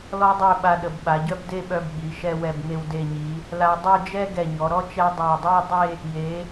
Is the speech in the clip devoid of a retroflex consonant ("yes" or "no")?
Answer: yes